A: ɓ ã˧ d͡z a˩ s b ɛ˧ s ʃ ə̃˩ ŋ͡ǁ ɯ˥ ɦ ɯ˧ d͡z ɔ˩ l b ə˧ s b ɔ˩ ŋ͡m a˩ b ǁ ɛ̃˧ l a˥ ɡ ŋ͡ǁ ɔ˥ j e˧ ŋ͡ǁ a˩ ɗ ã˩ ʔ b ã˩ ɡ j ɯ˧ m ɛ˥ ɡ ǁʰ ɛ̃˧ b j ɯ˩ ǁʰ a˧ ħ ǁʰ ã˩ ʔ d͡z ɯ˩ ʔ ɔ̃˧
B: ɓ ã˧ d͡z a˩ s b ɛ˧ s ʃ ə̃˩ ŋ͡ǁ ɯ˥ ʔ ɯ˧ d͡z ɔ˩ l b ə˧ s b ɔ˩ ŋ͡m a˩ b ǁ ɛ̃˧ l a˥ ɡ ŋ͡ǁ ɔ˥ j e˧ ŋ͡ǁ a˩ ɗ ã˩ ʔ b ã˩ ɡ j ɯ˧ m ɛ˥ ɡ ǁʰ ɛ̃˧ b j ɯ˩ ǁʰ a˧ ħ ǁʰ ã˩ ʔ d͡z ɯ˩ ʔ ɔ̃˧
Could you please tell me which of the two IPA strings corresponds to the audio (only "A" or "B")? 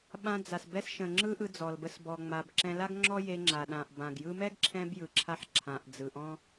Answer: B